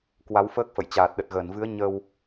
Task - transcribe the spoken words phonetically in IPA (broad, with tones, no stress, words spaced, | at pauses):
kwa˨˦wfəː˦˥k̚fə̰˧˨j t͡ɕaː˨˩t̚ɗə˨˩t̚ɣəː˧˩nvɨ˨˦ə̯ ɲə˧w